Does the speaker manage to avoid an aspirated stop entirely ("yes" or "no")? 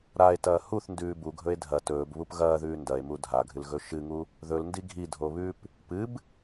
yes